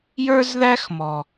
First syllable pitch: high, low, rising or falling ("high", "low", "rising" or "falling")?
high